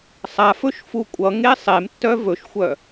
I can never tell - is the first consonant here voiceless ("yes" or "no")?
yes